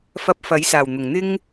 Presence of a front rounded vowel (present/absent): absent